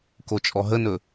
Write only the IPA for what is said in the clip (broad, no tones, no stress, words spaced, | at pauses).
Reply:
kot͡ʃʼɔɦənɵ